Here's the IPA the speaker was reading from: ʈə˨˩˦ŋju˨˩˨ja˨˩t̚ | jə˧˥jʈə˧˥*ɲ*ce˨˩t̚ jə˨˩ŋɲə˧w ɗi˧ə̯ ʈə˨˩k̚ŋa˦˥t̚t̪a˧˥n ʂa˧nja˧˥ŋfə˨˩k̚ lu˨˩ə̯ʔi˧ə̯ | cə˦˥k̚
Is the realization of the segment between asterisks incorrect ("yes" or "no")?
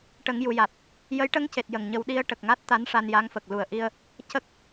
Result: yes